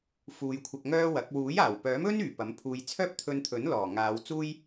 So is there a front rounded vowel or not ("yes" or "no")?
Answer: yes